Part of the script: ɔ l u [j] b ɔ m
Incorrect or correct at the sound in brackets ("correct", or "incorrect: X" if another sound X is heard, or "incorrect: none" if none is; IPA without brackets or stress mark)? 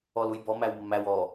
correct